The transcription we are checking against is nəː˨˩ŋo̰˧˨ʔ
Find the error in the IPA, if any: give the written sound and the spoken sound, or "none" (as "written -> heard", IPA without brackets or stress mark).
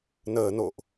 ŋ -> n